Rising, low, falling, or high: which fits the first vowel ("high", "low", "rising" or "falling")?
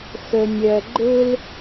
low